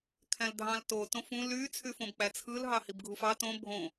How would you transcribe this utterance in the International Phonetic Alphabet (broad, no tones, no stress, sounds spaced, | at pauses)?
kʰ æ̃ l dʱ ɑ̃ l t o t õ f ũ l y t͡sʰ y f õ b k͡p æ t͡sʰ ɯ l ɦ ɑ h i b ɡʱ u f ɑ t õ bʱ õ